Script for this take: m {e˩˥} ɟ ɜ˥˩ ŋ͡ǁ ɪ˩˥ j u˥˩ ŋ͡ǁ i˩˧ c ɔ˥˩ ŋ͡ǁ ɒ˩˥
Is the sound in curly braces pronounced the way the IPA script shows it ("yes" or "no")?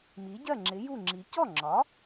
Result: no